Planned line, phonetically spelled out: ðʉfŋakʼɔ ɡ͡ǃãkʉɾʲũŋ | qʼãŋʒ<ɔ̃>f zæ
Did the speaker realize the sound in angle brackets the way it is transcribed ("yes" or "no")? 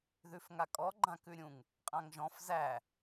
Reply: yes